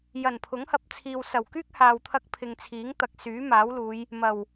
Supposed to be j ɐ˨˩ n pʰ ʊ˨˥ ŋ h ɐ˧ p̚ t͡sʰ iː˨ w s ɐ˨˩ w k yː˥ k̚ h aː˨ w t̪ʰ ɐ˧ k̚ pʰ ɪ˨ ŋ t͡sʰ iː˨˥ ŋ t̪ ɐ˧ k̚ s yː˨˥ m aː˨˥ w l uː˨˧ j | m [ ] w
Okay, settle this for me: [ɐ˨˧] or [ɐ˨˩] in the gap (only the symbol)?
ɐ˨˩